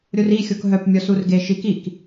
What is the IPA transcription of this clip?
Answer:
ɾʲ o r i xʲ o k ɦ œ p mʲ ɔ s u r ɡ e ʃ i k i k

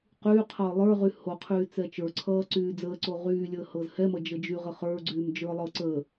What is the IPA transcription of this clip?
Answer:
q yː qʰ ʌː lˠ ə˞ ʁ y h o qʰ yː t͡s ɛ t͡ʃ ə˞ ǀʰ ʌː ǀ yː d͡z əː ǀ o ʁ yː lʲ əː h ɤ z h ɛ m ʌ d͡ʒ ə d͡ʒ y ʁ ə χ ə˞ ɡ͡ǀ yː m d͡ʒ ə˞ lˠ ɤ ǀ əː

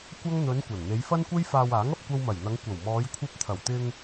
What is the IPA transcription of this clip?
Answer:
kʷ ɐ˥ ŋ n̪ ɵ˨˧ n kʷ ɐ˨˩ n n̪ e˨˧ j f ɐ˥ n kʷ e˥ j f aː˧ w aː˨˥ ŋ ɐ˨ p̚ kʷ ɐ˧ w m ɐ˨˩ j n̪ ɐ˨˧ ŋ kʷ ɐ˨˩ w m ɔː˨˧ j kʷʰ ɐ˧ p̚ t̪ʰ ɐ˨˩ w t̪ ɪ˧ ŋ

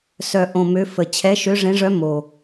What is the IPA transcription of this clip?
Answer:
s œ˨˩ ʔ õ˨˩ m ø˧˥ f ə˨˩ t͡ɕʰ ɛ˧˥ ʃ ø˧˥ ʐ ẽ˧˥ ʐ œ˧˥ m o˨˩

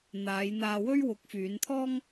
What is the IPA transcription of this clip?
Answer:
n̪ aː˨˧ j n̪ aː˧ w ɵ˥ ɥ w ʊ˨˥ k̚ f yː˨˧ n t̪ʰ ɔː˥ ŋ

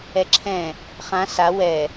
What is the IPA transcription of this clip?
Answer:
ɛ ǁʰ ɛ̃ | χ ã s a w ɛ

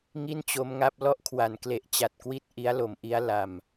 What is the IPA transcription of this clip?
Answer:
ŋ i˥˩ n t͡ɕ o˦˥ m ŋ a˦˥ p̚ l ɔ˥˩ ʔ kʰ w a˩˦ n k l e˨˩ ʔ t͡ɕ a˨˩ t̚ k w i˥˩ t̚ ʔ i˦˥ a̯ l o˩˦ m ʔ i˦˥ a̯ l a˨˩ m

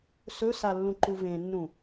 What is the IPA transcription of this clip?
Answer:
s ɵ s a lː ũ ǃ u v ẽ nː ũ

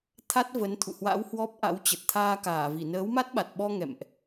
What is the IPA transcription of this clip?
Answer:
t̪ʰ a˦˥ t̚ v ə˨˦ n t̪ʰ ṵ˧˨ h w a̰˧˥ w h w ɔ˦˥ p̚ ʔ a̰˧˥ w t͡ɕ ə˨˩ t̚ t̪ʰ aː˧ k aː˧˩ v i˧˩ n əː˨˦ w m a˦˥ t̚ ɓ a˨˩ t̚ ɓ ɔ˧ ŋ ɛ̰˧˨ m ʔ

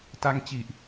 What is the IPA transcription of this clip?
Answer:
t a˧ ŋ t͡ɕ i˨˩ ʔ

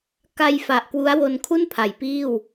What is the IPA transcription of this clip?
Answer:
k a˧ j f a˨˩ ʔ k w u˦˥ a̯ w o˧ n kʰ u˥˩ n pʰ a˩˦ j p iː˥˩ w

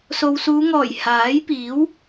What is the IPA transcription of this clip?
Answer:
s o˨ w s uː˨˧ ŋ ɔː˨˩ j h aː˨˥ j p iː˨˥ w

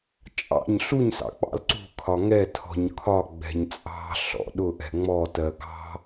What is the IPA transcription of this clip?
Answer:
t͡ʃʼ ɑ̰ ɲ ɬ u ɲ s ɑ̰ k͡p ɑ̰ l ǀ ṳ kʰ ɒ ŋ ɛ tʰ ɔ̤ ɲ kʰ ɒ ɡ͡b ɛ̤ ɲ t͡sʼ ɑ̤ ɬ ɔ̰ ɗ ʊ ʔ ɛ̤ ŋ͡m ɔ t ɜ ɡ ɑ̤

